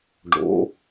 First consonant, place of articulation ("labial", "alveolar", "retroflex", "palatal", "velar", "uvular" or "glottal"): retroflex